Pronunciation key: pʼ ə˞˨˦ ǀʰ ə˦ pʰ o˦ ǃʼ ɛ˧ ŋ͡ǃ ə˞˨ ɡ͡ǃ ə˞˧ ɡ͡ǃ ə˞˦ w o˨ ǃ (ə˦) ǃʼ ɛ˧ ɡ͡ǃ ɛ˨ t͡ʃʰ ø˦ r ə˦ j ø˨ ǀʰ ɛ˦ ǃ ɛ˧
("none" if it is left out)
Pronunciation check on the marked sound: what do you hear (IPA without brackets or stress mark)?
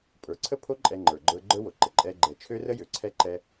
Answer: ə˨